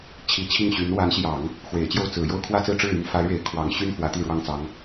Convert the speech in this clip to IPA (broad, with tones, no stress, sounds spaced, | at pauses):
t͡ɕʰ i˧˥ t͡ɕʰ i˥˩ ŋ ɕ y˧˥ n w a˧˥ n ɕ j ɑ˨˩˦ ŋ | x w e˨˩ ɪ̯ t͡ɕ j o˥˩ ʊ̯ t͡s ɹ̩˨˩ j o˥˧ ʊ̯ kʰ w ä˥˧ t͡s ɹ̩˥˧ ʈ͡ʂ ɻ̩˥˩ y˥ n f a˧˥ ɪ̯ ɻ e˧˥ ɪ̯ kʰ w ɑ˨˩ ŋ ɕ y˥ n f w ä˧˥ t̪ i˥˩ ɻ w ɑ˥ ŋ t͡s ɑ˧˥ ŋ